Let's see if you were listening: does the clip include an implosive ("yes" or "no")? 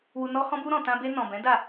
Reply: no